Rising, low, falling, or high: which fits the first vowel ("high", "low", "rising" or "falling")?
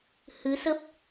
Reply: rising